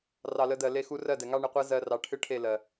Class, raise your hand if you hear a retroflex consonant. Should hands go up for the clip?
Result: yes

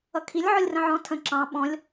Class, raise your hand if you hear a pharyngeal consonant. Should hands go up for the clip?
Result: yes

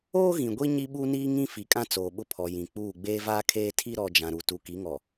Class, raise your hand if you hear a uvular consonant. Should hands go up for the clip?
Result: no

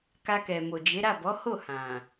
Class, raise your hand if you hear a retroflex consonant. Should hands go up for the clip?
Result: no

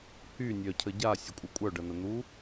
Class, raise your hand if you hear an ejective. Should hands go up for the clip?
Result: yes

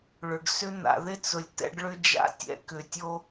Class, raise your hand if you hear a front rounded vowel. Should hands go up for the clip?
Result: yes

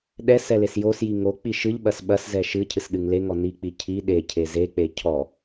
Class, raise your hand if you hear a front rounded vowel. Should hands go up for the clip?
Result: no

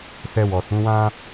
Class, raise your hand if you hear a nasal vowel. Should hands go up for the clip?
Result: yes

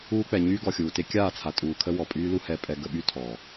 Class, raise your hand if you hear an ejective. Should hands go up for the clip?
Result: yes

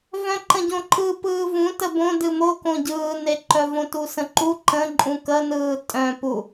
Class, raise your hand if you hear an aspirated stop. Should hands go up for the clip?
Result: no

